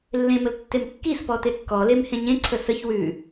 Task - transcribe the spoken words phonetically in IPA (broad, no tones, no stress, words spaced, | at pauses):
lːẽməl tːemkːispɔ tekːɔlem hẽɲẽǀʰə səç wʉ